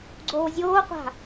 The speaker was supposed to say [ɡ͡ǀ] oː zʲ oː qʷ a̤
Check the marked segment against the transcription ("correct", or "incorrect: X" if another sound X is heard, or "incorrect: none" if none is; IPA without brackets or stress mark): correct